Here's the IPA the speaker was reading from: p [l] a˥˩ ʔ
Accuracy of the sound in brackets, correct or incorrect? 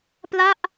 correct